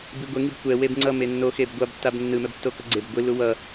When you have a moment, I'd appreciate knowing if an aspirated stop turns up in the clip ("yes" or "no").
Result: no